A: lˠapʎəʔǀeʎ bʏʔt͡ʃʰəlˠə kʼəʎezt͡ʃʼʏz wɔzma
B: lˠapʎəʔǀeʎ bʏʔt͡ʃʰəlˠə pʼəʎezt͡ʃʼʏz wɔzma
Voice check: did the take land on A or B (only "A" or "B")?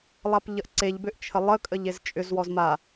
A